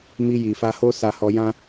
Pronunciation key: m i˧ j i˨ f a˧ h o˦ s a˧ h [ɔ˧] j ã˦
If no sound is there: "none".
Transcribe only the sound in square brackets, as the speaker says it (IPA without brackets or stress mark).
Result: ɔ˧